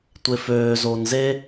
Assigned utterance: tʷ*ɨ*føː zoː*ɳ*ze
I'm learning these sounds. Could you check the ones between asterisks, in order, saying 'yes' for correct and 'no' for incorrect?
no, no

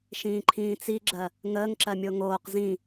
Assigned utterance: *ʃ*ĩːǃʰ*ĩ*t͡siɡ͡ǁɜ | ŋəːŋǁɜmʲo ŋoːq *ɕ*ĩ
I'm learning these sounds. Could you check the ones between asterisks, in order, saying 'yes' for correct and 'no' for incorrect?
yes, no, no

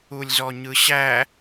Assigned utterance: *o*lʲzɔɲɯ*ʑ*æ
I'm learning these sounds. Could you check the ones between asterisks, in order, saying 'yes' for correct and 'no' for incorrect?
no, no

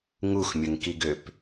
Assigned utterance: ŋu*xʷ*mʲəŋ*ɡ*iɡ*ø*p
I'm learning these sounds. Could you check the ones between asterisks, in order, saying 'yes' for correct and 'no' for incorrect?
no, no, yes

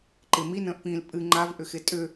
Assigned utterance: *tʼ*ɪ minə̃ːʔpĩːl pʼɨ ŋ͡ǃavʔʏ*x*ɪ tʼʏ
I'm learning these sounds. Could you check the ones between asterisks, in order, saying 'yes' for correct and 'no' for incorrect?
no, yes

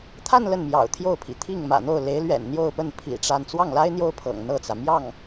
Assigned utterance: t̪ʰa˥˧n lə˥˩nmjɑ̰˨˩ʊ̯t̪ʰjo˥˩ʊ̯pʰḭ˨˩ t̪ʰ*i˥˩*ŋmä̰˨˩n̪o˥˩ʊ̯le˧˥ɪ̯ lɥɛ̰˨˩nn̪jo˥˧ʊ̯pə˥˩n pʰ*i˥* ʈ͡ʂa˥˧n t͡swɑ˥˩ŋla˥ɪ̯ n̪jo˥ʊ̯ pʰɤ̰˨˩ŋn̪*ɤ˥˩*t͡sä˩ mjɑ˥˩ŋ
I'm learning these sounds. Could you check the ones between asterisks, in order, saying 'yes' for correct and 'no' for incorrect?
yes, no, yes

